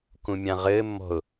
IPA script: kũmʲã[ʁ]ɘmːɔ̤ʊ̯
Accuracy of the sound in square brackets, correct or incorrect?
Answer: correct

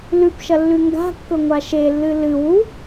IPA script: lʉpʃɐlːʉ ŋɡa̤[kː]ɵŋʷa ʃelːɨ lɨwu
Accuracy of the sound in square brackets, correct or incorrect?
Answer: correct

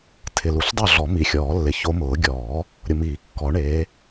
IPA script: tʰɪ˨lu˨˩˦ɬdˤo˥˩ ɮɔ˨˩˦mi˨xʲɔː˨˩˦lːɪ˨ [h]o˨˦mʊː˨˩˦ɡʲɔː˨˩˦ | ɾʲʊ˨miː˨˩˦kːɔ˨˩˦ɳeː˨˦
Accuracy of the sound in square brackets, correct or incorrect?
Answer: incorrect: ç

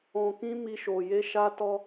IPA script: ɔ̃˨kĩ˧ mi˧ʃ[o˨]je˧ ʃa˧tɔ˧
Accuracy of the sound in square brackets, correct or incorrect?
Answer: correct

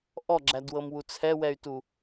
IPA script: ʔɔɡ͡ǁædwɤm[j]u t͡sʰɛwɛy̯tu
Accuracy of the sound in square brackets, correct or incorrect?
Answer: incorrect: w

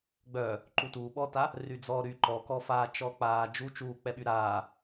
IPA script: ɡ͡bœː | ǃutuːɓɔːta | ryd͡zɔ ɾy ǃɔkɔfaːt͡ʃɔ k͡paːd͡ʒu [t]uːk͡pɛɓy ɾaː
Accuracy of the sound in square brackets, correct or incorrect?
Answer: incorrect: t͡ʃ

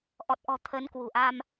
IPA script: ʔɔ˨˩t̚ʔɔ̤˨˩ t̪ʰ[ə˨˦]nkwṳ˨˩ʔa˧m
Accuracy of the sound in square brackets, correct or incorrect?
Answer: correct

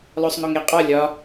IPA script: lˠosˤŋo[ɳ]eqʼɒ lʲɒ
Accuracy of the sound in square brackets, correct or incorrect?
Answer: incorrect: ŋ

